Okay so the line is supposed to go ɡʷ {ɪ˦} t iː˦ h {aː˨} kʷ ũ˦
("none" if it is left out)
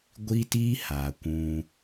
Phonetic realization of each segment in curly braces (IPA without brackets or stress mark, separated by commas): i˦, aː˨